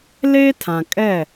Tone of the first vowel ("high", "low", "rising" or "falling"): high